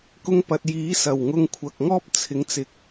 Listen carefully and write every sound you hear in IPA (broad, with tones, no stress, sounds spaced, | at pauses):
k ʊ˧ ŋ p ɐ˨ t̚ j iː˨˥ s ɐ˨˩ w ŋ ʊ˧ ŋ kʷʰ ɐ˨ k̚ ŋ ɔː˥ p̚ t͡sʰ ɪ˨˥ ŋ t͡s ɪ˨ k̚